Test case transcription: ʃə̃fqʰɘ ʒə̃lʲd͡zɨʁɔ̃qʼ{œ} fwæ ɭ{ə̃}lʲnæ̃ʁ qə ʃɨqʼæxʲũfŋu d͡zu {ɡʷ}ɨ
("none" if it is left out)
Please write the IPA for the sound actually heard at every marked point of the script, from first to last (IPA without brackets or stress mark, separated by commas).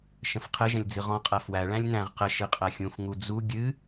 æ, æ̃, ɡʲ